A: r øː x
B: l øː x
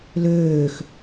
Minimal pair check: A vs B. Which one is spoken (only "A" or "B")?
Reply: B